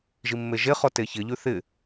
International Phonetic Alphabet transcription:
ʒ i mː e ʒ e χ ɔ t e ç ɪ ʎ ʉ θ ɪ

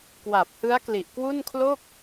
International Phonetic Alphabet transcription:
k w a˨˩ p̚ h ɯ˦˥ a̯ k l i˨˩ ʔ k w u˥˩ n kʰ l o˥˩ k̚

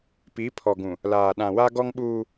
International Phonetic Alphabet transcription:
p i˨˦ pʰ ɔ˨ ɡ ũ˨ | l aː˨ ɗ ã˨ w a˦ ɡ ɔ˦ ŋ ɓ uː˦

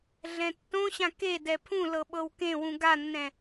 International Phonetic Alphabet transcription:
ɮ ɛ̃ tː õ ɕ ã k e d ɛ pʰ ũ l ɤ ɓ ɤ w k ẽ w ũ ɡ a nː ɛ̃

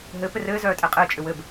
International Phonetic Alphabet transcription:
ɦ ɘ p ɘ r ɘː z œː tʼ ɛ qʼ ɘː t͡ʃʼ ʏ w ɘ b

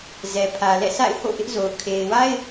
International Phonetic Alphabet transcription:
z ɛ˨ pʰ ä˨ l ɛ̰˦˨ sʰ a̰˦˨ ɪ̯ h o̰˦˨ ʔ ɪ˦ ʔ z o˨ ʊ̯ kʰ e˨ ɪ̯ w a˦ ɪ̯

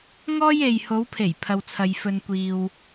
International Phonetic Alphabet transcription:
ŋ ɔː˥ j e˧ j h o˨˧ w pʰ e˨˩ j pʰ ɐ˨ w t͡sʰ ɐ˨ j f ɵ˨ n kʷ iː˨ w

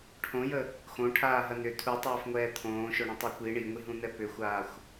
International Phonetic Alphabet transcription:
ʈʰ õ j ə | x õ ʈʰ aː ɦ ɐ n ʏ tʰ u tˤ ɛː f ŋʷ ɛː t̪ʰ õː ʃ o ɳ ɐ̃ tˤ a kʷ i ɳ i ŋʷ i ɦ ũ n̪ ɛ p ʏ xʷ aː xʷ

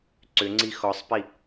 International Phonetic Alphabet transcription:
ǀ ʏ ŋ͡ǀ i x ɔ sˤ p i

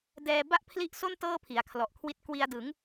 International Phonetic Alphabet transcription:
d ɛː˧ b a˥˩ ʔ pʰ l i˦˥ ʔ s o˥˩ n t ɤː˥˩ pʰ i˩˦ a̯ kʰ l ɔ˨˩ ʔ kʰ w i˦˥ t̚ k w i˧ a̯ d ɯ˩˦ ŋ

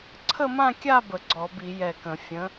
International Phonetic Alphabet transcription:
ǀʰ ə˥˧ m ã˥˧ kʲ a˥˧ b ə˧˩˧ ɡ͡ǀ ɔ˧˩˧ b i˧˩˧ j ɛ˧˩ k ə̃˧˩˧ fʲ ə̃˨˥

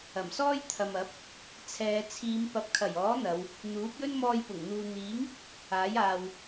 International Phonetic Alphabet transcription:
ɐ˨˩ m s ɔː˥ j t̪ʰ ɐ˨ m ɐ˨˥ p̚ | t͡sʰ ɛː˨˧ t͡sʰ iː˨˧ m p ɐ˨ p̚ kʰ ɐ˨˩ j ɔː˨˥ n̪ ɐ˨˧ w | n̪ uː˨˥ p̚ j ɵ˥ n m ɔː˧ j p ʊ˨˩ ŋ n̪ uː˨ n̪ iː˨˥ ŋ | aː˨˥ j aː˨ w

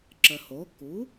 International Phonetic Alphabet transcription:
ǁ ə˩ h o˩˥ k u˩˥

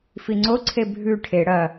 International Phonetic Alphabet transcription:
f i ŋ͡ǀ o ǀʰ e bʱ ʉ ʈʰ e ɽ ɐ

